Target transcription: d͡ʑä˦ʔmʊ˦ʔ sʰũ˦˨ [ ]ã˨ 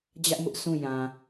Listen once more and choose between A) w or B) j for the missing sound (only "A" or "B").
B